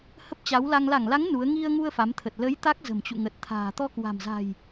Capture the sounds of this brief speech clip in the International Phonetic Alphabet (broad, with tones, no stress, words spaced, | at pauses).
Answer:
hə˦˥p̚t͡ɕa˨˦wla˧ŋ la˧˩ŋla˨˦ŋ nu˨˦ə̯ ŋi˧ə̯ŋu˧ə̯ fa˨˦mt̪ʰə˨˩t̚ lə˨˦j t̪a˦˥k̚zə̤˨˩mt͡ɕṵ˧˨ ŋə˨˩t̚t̪ʰa̤ː˨˩ t̪ɔ˧kwa̤˨˩mza̤˨˩j